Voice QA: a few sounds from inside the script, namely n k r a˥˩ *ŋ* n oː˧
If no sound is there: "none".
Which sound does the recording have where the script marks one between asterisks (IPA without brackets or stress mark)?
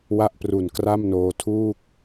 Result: m